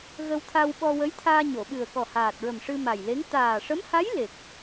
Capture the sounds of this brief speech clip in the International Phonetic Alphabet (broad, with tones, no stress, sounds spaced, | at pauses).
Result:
ɣ ə˧ w t̪ʰ a˧ w ɓ ɔ˧ w ə˧˥ j t̪ʰ aː˧ ɲ o˨˩˨ ɓ ɨ˨˩ ə̯ k ɔ˨˩ h aː˨˩ t̚ ɹ ə˨˩ m ʂ ɨ˧ m a˨˩ j l e˧˥ ŋ t̪ aː˨˩ ʂ ə˧˥ m h a˧˥ j l e˨˩ k̚